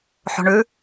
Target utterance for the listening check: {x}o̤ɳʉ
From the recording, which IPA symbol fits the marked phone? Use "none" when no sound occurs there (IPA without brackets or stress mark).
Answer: ħ